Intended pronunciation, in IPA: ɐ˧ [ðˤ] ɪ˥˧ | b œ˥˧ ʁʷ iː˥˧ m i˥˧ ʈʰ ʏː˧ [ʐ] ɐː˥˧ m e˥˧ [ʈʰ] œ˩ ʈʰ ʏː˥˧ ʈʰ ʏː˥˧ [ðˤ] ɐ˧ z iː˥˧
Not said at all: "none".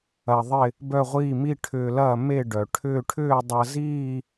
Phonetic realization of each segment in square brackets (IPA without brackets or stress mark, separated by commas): ðˤ, l, ɖ, dˤ